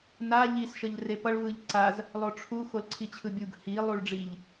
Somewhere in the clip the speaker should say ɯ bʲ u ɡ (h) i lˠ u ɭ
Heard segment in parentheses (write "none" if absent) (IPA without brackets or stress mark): h